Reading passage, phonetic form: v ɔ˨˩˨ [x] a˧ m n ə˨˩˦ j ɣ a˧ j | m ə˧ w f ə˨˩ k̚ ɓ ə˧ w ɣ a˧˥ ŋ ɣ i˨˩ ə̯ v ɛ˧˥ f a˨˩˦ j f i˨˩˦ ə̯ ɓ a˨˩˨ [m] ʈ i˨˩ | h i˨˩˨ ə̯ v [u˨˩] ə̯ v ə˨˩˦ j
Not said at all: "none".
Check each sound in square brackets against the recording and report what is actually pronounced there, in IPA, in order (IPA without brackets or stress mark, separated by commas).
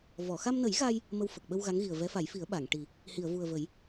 x, ŋ, u˨˩